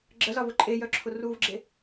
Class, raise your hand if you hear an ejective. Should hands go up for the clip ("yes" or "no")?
yes